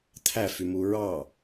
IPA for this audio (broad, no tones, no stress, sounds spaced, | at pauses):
t̪ʰ æ f y m u ɹ ɑ